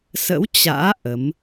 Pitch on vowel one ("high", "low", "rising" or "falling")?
rising